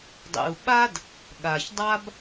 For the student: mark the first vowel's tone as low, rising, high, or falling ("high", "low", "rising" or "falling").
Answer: low